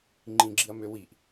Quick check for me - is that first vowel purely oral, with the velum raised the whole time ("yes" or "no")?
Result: no